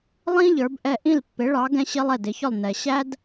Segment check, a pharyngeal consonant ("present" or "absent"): absent